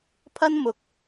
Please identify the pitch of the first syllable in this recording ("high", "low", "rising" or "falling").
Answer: high